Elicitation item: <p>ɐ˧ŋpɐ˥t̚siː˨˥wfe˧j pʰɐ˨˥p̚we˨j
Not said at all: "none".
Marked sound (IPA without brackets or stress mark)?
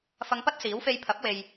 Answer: f